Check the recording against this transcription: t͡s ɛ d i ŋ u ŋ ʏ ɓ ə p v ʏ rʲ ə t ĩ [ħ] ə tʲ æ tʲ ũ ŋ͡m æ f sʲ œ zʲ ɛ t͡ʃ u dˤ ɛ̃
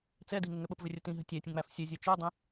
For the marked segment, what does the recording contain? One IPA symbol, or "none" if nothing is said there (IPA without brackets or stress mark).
ɦ